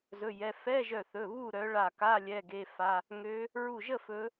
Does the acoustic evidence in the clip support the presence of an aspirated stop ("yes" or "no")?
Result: no